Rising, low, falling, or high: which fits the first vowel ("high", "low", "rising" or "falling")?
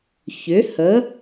rising